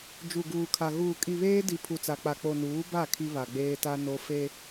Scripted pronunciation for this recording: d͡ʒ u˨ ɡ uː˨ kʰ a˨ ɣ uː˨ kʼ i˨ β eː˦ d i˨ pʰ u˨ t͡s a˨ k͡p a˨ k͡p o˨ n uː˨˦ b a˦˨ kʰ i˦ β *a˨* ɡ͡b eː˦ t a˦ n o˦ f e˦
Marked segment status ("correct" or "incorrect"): correct